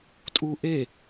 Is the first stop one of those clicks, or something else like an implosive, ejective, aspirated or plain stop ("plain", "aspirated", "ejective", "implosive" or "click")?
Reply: ejective